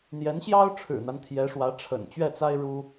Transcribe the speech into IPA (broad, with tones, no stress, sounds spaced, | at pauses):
n̪ j ɛ˧˥ n ɕ j ɑ˥ ʊ̯ ʈ͡ʂʰ ɻ̩˨˩ n̪ a˦ n t̪ʰ j ɛ˧˥ ʂ w ä˧˥ ʈ͡ʂʰ ə̰˨˩ n t͡ɕ ɥ ɛ˥˩ t͡s a˥ ɪ̯ ɻ u˥